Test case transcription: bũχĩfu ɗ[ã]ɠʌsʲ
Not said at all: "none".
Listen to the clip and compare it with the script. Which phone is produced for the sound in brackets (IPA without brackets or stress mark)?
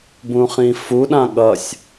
ã